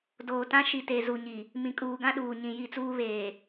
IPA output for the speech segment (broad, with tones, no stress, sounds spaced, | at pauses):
d oː˨ t ã˦ ʃ i˨ t e˨ z u˨ ɲ i˨ | m ĩ˨ kʼ uː˨ ɡ ã˦ ɗ uː˨ ɲ ĩ˨ j i˦˨ t͡s uː˦ β eː˨